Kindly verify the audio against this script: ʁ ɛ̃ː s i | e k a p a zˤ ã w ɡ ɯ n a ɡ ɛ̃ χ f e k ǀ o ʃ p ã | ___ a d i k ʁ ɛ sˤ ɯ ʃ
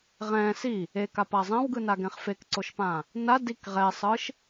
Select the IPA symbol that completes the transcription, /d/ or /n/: n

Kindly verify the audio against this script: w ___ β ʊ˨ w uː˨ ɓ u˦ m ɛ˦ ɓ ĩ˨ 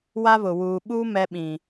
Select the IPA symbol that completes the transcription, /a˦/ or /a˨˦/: a˦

